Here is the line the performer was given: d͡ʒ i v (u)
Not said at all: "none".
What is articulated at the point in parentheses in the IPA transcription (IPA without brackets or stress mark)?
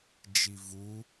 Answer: u